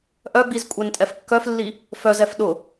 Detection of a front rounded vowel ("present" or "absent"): present